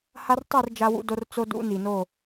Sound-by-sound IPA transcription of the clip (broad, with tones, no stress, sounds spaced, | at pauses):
h a˦ r tˤ i˦˨ r d͡ʒ a˦ w ṵ˦ d o˦ r t͡s o˦ d ṵ˦ n i˨ n o˦˨